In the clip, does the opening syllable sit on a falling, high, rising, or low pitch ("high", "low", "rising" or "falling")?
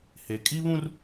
low